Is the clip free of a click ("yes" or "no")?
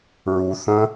yes